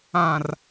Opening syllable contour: low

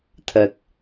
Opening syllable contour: low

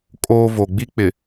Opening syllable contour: high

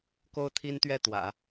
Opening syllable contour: high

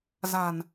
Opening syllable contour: low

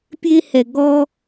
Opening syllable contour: high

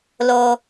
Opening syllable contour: low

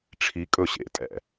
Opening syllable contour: rising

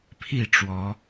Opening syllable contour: falling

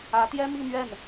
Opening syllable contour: rising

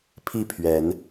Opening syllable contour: falling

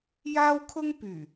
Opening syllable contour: high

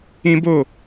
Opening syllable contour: high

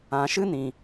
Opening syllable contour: low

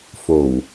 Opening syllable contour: low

